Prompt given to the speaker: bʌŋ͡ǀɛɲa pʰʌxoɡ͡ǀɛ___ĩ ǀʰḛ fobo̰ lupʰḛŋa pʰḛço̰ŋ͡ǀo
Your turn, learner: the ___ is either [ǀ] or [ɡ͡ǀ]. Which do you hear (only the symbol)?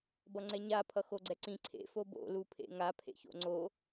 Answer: ǀ